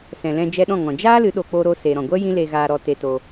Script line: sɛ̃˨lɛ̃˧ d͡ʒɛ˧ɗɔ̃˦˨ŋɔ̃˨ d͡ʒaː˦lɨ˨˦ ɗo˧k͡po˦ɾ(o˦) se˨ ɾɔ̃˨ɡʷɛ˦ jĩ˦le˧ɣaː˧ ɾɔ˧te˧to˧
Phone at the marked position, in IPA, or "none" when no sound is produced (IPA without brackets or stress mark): o˦